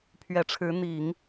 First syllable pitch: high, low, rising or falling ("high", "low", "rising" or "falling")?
rising